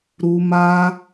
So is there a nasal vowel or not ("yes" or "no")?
no